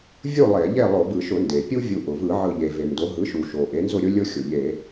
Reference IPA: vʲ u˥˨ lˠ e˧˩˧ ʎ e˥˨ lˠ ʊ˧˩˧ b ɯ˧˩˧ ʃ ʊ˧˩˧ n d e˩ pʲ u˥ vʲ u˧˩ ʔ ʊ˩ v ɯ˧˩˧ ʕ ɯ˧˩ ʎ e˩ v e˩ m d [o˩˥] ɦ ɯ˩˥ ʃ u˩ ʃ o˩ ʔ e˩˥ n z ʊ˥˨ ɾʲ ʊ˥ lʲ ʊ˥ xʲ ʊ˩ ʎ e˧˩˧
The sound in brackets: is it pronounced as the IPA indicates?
yes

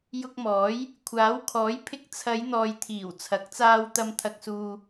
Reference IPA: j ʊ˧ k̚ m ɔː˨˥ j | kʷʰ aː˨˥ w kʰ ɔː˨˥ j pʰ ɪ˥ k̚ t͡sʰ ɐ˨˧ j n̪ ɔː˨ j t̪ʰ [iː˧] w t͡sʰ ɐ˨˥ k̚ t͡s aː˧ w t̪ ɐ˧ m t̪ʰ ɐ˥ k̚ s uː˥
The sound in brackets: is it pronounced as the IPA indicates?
no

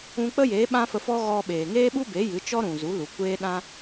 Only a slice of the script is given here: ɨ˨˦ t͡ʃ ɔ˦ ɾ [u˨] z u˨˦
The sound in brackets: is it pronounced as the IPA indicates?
no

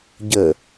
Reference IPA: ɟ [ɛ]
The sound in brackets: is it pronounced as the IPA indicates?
no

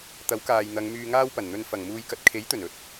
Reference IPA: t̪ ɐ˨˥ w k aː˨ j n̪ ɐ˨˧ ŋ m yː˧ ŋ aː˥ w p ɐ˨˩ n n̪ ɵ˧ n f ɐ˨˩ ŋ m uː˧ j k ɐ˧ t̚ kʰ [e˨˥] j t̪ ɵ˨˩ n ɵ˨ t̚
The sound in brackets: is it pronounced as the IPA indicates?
yes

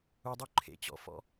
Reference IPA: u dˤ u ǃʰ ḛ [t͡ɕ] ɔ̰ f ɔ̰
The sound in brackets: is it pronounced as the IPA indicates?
yes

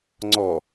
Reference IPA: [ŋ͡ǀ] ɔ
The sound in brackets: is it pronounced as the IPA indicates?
yes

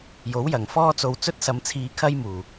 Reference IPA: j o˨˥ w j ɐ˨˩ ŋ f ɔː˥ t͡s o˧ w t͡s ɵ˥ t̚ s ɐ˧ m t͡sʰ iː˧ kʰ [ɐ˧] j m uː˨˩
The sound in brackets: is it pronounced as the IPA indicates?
no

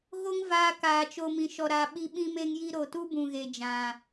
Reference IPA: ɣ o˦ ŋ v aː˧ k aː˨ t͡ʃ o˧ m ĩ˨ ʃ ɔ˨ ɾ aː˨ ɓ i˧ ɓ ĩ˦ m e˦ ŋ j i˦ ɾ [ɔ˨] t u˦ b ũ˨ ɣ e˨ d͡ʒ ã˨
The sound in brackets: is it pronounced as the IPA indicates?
no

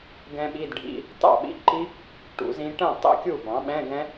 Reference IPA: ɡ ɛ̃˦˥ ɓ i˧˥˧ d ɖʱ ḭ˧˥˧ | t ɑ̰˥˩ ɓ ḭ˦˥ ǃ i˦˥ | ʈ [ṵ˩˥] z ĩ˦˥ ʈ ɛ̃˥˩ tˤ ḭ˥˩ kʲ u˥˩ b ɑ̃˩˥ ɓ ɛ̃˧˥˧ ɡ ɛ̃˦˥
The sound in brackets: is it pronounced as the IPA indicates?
yes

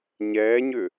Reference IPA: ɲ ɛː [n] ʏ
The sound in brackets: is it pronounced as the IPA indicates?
no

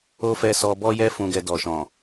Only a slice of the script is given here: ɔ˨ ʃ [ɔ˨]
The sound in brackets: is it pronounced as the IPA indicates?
no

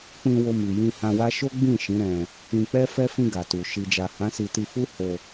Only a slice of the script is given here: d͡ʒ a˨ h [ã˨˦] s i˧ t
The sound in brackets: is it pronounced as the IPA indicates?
yes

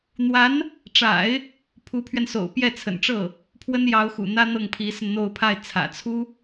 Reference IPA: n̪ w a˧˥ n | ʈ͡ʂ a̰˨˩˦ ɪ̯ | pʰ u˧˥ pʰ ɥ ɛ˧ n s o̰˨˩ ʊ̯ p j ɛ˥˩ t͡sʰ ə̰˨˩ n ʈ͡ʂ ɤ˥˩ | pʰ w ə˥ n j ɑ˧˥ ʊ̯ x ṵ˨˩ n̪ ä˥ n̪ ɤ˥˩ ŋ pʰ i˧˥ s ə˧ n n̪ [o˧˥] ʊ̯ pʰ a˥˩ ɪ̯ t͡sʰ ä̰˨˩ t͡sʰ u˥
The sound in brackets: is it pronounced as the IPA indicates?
no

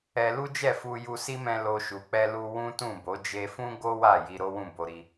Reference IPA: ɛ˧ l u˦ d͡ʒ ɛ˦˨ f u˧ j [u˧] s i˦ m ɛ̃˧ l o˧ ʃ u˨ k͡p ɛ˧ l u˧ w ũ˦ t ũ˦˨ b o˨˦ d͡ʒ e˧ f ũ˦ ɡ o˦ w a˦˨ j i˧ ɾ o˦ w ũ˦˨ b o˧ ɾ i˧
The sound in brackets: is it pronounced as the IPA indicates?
yes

